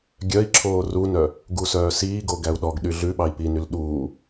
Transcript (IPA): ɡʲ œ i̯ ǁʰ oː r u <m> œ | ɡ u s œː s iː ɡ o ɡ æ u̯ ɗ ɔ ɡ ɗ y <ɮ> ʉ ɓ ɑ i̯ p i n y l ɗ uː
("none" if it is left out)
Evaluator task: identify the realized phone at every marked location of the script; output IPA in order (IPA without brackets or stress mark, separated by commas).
n, ɮ